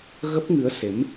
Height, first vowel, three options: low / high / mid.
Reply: mid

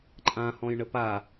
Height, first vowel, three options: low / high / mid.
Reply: low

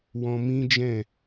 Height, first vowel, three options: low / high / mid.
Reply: mid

